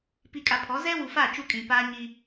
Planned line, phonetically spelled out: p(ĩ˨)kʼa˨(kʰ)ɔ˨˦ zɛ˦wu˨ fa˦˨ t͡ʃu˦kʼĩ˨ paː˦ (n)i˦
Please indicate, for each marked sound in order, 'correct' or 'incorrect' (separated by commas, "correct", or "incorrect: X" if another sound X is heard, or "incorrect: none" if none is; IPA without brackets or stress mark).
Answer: incorrect: i˨, incorrect: pʰ, incorrect: ɲ